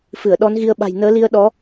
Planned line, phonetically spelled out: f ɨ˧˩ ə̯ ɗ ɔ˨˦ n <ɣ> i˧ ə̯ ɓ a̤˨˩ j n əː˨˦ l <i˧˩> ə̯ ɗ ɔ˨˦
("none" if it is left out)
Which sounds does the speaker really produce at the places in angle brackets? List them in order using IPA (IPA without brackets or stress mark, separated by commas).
ɣ, i˧